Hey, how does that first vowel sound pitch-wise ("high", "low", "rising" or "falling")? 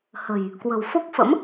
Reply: low